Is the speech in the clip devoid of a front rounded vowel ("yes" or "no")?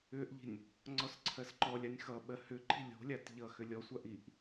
no